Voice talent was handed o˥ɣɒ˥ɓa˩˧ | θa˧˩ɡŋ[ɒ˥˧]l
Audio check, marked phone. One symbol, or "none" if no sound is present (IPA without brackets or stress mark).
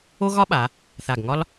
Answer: ɒ˥